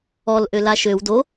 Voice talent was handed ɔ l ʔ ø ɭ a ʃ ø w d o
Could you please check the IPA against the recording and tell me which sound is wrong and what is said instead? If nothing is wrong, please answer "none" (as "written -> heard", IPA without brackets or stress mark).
ɭ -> l